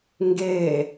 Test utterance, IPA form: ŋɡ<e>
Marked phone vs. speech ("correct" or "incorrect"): correct